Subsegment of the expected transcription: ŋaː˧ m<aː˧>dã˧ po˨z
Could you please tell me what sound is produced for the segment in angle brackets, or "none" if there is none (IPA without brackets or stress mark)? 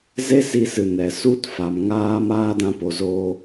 aː˦